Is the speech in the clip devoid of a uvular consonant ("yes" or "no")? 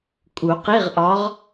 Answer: no